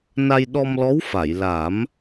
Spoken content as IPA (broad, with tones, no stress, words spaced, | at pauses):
na˧jɗɔ˧mlɔ˧˥w fa˨˩˨jla˨˩˦m